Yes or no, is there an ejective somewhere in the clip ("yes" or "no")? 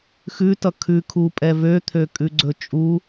yes